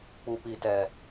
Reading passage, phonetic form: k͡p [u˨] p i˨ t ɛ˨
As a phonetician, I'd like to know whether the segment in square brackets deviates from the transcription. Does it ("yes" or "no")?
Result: no